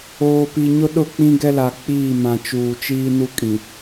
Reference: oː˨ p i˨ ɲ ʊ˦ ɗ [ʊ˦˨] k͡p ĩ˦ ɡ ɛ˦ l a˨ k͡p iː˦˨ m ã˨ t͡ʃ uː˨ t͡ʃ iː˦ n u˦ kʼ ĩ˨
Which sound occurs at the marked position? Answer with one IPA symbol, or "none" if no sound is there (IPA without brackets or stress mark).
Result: ʊ˦˨